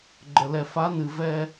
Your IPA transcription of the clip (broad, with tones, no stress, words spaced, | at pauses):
ɡ͡ǃə˨lɛ˨ fa˨˦nɨ˨vɛ˦